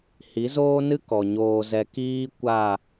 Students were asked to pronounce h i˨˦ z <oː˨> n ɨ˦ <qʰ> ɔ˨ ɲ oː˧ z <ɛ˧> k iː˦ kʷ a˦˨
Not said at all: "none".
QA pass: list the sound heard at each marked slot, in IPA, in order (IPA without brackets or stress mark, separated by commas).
oː˦, k, ɛ˧